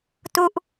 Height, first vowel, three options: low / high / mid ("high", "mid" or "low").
high